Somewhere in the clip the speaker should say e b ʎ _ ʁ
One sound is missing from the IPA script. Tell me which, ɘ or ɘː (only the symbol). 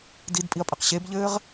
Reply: ɘː